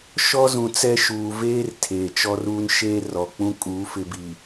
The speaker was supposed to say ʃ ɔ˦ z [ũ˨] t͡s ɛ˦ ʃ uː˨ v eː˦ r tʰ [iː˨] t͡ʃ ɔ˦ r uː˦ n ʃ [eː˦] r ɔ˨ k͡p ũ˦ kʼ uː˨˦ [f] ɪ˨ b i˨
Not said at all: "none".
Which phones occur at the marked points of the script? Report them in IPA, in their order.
ũ˨, eː˨, eː˦, f

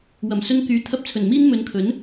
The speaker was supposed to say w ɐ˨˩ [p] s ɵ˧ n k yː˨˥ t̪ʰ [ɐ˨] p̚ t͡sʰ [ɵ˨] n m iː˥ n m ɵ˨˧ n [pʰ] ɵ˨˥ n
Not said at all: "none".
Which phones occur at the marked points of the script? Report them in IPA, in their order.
m, ɐ˧, ɵ˨˩, kʰ

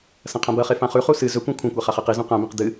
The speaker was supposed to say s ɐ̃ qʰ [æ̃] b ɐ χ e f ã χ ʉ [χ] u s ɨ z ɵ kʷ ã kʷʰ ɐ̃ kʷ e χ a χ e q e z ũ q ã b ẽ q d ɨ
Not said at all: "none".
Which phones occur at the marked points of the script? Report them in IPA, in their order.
ã, χ

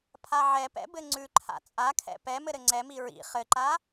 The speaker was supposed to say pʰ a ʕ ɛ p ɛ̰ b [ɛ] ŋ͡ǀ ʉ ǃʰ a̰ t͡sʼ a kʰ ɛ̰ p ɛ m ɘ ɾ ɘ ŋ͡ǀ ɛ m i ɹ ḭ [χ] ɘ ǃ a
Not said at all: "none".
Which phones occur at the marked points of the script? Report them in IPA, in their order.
ɘ, χ

